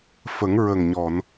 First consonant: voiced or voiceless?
voiceless